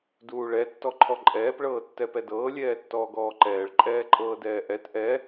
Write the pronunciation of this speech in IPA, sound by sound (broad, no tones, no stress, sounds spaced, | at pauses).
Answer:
d uː ɭ ɛ tː ɔ ǃʰ ɔ ǃʼ ɛː p ɭ ɤː tː ɛ p ɛ d ɤː lʲ ɛː tː ɔː ɡ ɔː ǃ ɛː ɭ ǃʼ ɛː ǃʼ ɤː d ɛː ʔ ɛ t ʔ ɛ